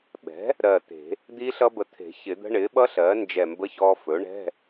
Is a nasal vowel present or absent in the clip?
absent